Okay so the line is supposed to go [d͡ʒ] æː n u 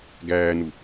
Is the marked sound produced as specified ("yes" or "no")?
no